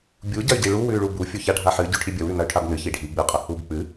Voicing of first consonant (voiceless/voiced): voiced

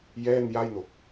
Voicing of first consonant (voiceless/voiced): voiced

